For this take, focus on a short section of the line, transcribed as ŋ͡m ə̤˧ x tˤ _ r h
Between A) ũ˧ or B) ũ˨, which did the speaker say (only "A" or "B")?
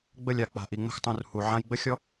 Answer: B